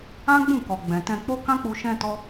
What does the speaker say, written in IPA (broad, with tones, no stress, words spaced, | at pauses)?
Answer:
ã˦ɡ͡bũ˦˨kɔ˨ ɡ͡bɛ̃˨tɛ̃˧k͡po˦ kã˦k͡pu˧ ʃɛ̃˧ tɔ˦